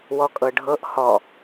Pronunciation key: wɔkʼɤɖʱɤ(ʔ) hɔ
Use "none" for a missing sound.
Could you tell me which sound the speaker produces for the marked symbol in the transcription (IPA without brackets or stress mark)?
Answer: ʔ